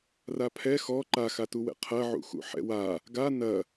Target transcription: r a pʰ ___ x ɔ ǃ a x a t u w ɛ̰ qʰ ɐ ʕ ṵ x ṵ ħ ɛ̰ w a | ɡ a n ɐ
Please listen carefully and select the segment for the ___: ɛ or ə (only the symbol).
ɛ